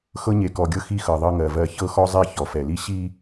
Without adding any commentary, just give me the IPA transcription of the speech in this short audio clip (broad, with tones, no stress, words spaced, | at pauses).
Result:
xɤ˦ɲe˨kɔ˨ɡʲɤ˦ xi˦xɤ˨ ðˤɤ˦ŋɜ˨vɜ˦ çɤ˦xɔ˦zˤɛ˦˨ çɔ˨fɛ˨li˦ ɕi˦